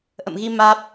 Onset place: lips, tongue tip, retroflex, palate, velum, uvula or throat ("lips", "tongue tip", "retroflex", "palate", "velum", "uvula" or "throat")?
throat